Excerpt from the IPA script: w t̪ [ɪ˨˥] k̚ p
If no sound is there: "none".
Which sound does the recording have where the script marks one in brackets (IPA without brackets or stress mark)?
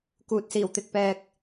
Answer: ɪ˨